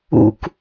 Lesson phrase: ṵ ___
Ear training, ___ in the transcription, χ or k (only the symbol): k